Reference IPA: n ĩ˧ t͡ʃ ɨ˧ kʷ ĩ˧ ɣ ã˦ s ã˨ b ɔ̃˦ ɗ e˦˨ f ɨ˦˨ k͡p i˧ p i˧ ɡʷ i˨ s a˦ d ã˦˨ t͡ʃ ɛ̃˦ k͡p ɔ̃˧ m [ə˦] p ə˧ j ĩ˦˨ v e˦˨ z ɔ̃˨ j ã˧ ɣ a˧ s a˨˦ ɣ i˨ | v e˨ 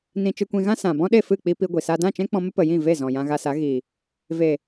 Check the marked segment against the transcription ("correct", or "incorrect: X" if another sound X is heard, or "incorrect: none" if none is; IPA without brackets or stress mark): correct